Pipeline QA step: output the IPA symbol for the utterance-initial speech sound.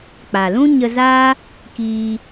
k͡p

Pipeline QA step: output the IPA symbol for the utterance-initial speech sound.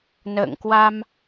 n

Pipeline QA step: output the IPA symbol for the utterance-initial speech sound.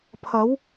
pʰ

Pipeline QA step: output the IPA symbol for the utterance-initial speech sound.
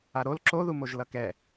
a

